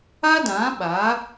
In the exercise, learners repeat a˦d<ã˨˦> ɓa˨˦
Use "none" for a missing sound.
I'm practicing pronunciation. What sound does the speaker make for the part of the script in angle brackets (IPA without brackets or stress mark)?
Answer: ã˨˦